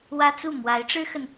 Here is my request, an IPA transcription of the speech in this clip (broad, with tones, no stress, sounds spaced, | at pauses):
w ä˥ t͡s u˥˩ m w a˧˥ ɪ̯ ʈ͡ʂ ɻ̩˥ x ə˨ n